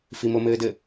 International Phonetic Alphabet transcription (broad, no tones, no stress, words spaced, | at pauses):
fimomɘːdɘ